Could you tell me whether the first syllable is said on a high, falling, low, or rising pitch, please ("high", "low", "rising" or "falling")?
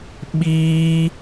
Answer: high